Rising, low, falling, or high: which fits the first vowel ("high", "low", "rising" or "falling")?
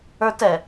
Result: high